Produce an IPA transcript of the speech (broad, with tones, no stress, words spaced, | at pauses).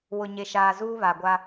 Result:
wʊ˨ ɲe˨ʃaː˨zuː˦ βa˨ ɡʷa˦